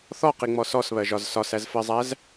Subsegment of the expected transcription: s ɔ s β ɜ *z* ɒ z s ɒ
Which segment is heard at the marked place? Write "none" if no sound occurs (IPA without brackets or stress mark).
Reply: ʒ